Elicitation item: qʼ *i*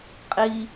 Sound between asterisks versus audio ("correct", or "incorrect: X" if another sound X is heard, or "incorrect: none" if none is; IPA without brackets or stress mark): correct